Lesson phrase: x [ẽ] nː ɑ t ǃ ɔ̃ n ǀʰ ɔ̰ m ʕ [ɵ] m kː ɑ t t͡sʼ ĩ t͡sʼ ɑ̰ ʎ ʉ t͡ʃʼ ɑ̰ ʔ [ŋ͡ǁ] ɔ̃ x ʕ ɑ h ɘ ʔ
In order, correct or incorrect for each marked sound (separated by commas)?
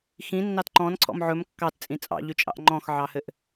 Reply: incorrect, correct, incorrect